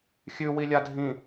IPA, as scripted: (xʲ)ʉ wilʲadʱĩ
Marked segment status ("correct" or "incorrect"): correct